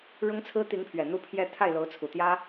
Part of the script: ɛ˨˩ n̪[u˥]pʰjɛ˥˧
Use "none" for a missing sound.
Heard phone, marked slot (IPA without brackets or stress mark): u˥